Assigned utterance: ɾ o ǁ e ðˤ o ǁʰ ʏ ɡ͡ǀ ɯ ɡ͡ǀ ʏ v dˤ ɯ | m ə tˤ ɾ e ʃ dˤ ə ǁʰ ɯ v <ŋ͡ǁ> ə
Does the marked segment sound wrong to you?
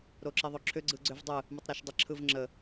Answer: no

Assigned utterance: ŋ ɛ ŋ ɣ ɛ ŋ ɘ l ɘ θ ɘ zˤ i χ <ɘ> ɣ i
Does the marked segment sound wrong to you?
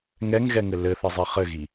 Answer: no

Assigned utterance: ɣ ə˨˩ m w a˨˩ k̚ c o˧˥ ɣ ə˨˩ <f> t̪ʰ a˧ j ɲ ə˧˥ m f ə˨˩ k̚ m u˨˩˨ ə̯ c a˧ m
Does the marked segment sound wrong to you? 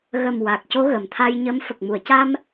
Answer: yes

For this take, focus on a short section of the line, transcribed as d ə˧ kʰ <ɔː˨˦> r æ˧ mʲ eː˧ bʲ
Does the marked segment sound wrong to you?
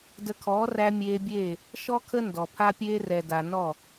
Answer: no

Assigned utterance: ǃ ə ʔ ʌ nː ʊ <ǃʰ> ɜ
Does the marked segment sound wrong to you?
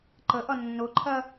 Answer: no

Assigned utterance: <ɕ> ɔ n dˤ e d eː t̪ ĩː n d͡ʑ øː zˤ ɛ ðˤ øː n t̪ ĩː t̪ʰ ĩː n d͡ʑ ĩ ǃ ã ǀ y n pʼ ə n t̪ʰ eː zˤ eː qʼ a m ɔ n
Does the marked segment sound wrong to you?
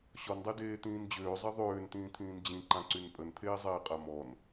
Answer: no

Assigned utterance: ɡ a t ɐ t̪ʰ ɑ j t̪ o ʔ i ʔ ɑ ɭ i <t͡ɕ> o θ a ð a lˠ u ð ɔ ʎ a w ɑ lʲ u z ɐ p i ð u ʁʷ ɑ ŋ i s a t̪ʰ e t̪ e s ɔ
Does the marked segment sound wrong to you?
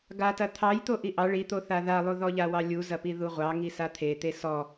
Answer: yes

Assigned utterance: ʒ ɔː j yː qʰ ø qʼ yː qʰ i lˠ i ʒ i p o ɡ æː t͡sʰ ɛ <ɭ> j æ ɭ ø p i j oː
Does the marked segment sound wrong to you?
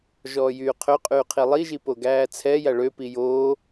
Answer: yes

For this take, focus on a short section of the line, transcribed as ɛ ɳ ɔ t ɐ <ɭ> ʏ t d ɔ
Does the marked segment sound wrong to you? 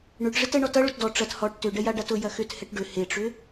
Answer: no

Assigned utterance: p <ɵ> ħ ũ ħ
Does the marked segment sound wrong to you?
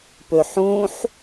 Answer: no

